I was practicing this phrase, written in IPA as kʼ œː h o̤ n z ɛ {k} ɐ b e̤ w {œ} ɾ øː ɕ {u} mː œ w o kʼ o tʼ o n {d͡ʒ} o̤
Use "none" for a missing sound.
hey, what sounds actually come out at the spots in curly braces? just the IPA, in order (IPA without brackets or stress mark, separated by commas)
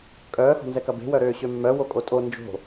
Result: k, œ, ø, d͡ʒ